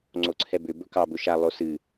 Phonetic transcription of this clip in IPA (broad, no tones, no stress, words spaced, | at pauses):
ŋ͡ǀoǀʰɛbʏ bɵkɑ bɵʃa lˠosɨ